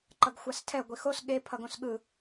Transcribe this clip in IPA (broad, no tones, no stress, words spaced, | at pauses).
ǃʌɡxʷastʰɛ ɡʷixos ɠe pʰʌɡõsɠɯ